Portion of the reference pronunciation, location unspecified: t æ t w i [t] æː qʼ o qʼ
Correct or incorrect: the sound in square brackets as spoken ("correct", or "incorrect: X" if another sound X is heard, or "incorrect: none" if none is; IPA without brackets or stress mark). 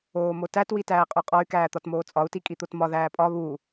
correct